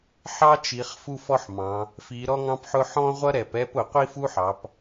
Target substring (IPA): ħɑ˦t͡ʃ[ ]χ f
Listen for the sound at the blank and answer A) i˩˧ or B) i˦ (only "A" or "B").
A